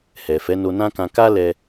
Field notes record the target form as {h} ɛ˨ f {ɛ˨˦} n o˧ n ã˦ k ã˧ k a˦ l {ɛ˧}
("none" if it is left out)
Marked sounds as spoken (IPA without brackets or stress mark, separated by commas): h, ɛ˨˦, ɛ˧